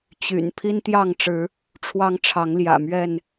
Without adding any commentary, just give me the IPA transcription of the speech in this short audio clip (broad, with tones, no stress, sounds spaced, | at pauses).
t͡ɕ y̰˨˩ n pʰ i˦ n t̪ j ɑ˥˨ ŋ ʈ͡ʂ ɻ̩˨˦ | ʈ͡ʂʰ w ɑ˦ ŋ ʈ͡ʂʰ ɑ˨˦ ŋ l j ä̰˨˩ m ɥ ɛ˥˨ n